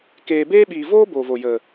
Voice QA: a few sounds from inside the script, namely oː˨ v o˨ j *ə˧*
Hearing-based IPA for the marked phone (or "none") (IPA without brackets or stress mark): ə˨